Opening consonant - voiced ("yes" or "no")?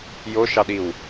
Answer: yes